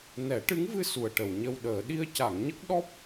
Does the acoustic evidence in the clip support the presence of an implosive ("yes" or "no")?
yes